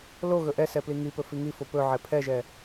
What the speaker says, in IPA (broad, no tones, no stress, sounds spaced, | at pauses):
l o ɣ ɵ ʔ ɛ s ɛ p l i ŋ i p ɵ f i ŋ i f o p ɵ ʕ ɛ pʰ ɛ ʒ ɛ